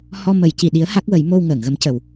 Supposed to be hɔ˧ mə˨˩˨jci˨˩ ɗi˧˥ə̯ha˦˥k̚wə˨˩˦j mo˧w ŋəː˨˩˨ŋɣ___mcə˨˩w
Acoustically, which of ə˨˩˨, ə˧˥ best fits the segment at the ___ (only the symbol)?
ə˧˥